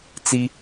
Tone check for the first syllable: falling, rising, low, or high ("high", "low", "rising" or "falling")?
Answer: high